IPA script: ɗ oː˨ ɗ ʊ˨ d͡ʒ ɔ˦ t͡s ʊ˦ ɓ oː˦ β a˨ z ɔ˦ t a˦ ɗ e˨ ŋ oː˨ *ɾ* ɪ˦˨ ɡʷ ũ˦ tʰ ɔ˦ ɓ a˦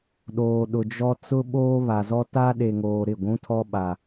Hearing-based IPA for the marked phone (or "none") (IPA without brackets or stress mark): ɾ